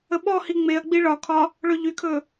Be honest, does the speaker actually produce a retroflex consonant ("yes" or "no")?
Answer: yes